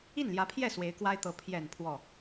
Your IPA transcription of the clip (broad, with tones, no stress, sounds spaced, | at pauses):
i˥˩ n l j ä˧˥ pʰ j ɛ˥˩ s w e˧˥ ɪ̯ k w a˥ ɪ̯ t̪ ɤ˧˥ pʰ j ɛ˨˩ n pʰ w ɔ˥˩